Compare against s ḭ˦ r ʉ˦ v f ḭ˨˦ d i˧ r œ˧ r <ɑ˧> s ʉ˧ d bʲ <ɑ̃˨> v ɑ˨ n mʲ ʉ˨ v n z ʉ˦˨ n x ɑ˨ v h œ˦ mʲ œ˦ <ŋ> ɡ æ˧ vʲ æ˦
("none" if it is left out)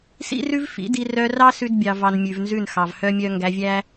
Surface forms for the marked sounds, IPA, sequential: ɑ˦, ɑ˨, ŋ

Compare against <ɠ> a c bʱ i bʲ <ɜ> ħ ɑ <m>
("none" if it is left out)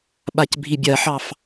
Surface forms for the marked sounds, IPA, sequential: ɓ, ɜ, f

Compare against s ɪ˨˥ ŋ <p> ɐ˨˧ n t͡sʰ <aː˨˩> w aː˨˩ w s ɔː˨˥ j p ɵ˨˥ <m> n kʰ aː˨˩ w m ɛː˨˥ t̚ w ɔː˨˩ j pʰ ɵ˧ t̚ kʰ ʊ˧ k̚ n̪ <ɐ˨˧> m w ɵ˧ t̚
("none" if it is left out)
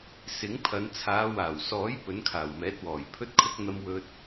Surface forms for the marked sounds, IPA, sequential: pʰ, aː˨˧, none, ɐ˧

